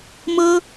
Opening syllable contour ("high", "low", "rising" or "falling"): high